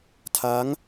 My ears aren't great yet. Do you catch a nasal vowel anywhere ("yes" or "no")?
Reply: no